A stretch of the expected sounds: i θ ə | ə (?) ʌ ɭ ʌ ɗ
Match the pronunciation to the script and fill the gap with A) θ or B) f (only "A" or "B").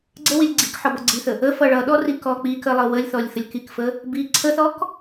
B